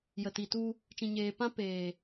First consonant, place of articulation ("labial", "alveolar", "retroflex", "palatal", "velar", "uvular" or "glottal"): palatal